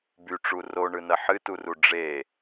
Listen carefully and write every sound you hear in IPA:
b y ʈ͡ʂ u r o ɳ ɯ n ɐ ħ ɨ t u r u ɖ͡ʐ e

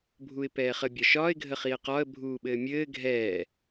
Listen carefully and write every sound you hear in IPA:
bʱ u ɪ̯ p ɛː χ ə bʲ ɒ ʃ ɒː ɪ̯ ɡʱ ə χ i ə̯ q ɒ ə̯ bʱ uː ɓ ɘː mʲ ɘː ɡʱ ɛː

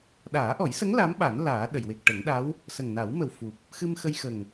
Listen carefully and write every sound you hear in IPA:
ɗ aː˨˩˦ ʔ ɔ˨˩˦ j s ə˧˥ ŋ l a˧˥ m ɓ a˨˩˦ n l aː˨˩˦ ɗ ə˨˩˨ j w e˨˩ k̚ ʈ ə˨˩˦ ŋ ɗ a˧˥ w | s ə˨˩ ŋ n a˨˩˦ w m ə˨˩ w f u˨˩ p̚ | x ɨ˧ m x ə˧ j x ə˨˩ ŋ

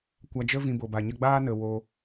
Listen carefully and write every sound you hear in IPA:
kʷ a˧ d͡ʒ ə˦ v ĩ˧ b o˨ b a˨ ɲ ə˦ ɡ͡b aː˦ n ə˨ w o˧

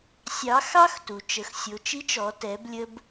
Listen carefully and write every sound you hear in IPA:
sʲ ɑ˩˧ x ɑ˥ x t u˩ t͡ʃ ə˩˧ x sʲ o˩˧ t͡ʃ i˧˥ t͡ʃ ɔ˩˧ t ɛ˩˧ b lʲ ə˧ b

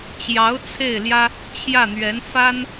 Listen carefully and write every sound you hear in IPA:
t͡ɕ j ɑ˧˥ ʊ̯ t͡sʰ e˥˩ ɪ̯ l j ä˥ | t͡ɕʰ j ä˥˩ n̪ ɥ ɛ˧˥ n f a˥ n

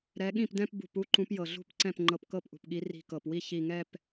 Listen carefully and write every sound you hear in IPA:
ɾ ɛ˨˦ ɠ ĩ˥˩ p d ɛ̃˥˧ p b ṳ˧˩ p u˥˧ ǃ ũ˨˦ p j ɤ˩ ɮ ṳ˥˩ p ǀ ɛ̃˥˩ p ŋ͡ǃ ɤ˧˩ p k ɤ˥˩ p ʔ ṳ˩ p ɠ i˨˦ r i̤˧˩ k ɤ˩ p w i˥˩ ç i˧˩ ŋ ɛ˥˧ p

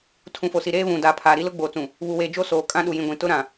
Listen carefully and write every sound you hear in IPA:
tʰ ũ˨ f o˨ s i˨ ɾ eː˦ β ũ˨ d aː˨ pʰ aː˨ ɾ i˦ l ʊ˦ ɡ͡b oː˨ t͡s ũ˨ | β u˨ w eː˨ d͡ʒ o˦ s oː˨ kʼ ã˦ ɗ u˨ j ĩ˨ ɡʷ ĩ˨ t ʊ˦ ɾ ã˨

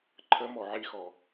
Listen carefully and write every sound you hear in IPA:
ǃʰ ə m ɔ ʕ i x ɔ

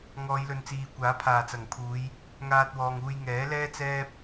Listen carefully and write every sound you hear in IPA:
ŋ ɔː˨˧ j l ɵ˨ n t͡s iː˨ kʷ aː˨˥ pʰ aː˨˩ t͡s ɐ˨˩ ŋ pʰ uː˨˧ j | ŋ aː˧ t̚ w ɔː˨ ŋ uː˧ j ŋ ɛː˨˥ l ɛː˥ t͡s ɛː˥ p̚

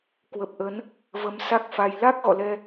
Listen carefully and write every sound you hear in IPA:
k w ə˨˩ p̚ ʔ ə˨˦ n | v ə˨˦ m s a˦˥ k̚ f a˧ j l a˦˥ k̚ ɣ ɔ̰˧˨ l ɛ˧

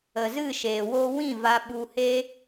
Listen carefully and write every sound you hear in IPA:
ə˨ z ɨ˦˨ ʃ eː˨ w o˧ w ĩ˦˨ v a˧ ɓ u˧ h e˦

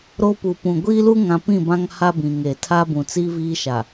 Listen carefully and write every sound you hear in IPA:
ɾ o˦ p u˨ p ũ˨ ɡʷ iː˦ l u˦ ŋ ã˨ p ĩ˦˨ b ã˦ ŋ h a˦ b ĩ˨ ŋ e˨ tʰ a˦ b ũ˨ t͡s iː˦ v iː˦ ʃ a˨

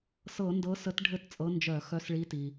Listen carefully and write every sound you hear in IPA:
s ɤ˧˩˧ n d ɤ˨˦ s ə˨˦ t ɖʱ ɘ˦˨ t t͡sʼ ɤ˨˦ n d͡ʒ œ˧˩˧ x œ˨˦ s ɭ i˨˦ t i˩

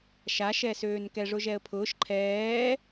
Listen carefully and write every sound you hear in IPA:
ʃ a ʃ ɛ s øː n k ɛ ʐ ʊ ʒ ɛ ə̯ pʰ ʊː ʃ ǃʰ ɛː

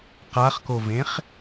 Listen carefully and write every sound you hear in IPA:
q a χ k o v ẽ χ

